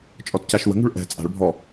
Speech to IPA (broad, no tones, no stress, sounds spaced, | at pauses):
t͡ʃʼ ɔ t c a ʃ w ə̤ ŋ ṳ ɭ ʔ ɛ̤ t͡sʼ a̤ ɭ bʱ ɔ